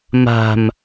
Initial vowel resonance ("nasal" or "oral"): oral